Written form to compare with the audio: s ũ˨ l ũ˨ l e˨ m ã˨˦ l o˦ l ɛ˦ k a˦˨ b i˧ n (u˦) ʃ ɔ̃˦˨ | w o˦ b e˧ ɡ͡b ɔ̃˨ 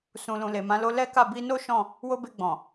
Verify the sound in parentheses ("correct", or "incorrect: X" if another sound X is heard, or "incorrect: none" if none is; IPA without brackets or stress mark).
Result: incorrect: o˦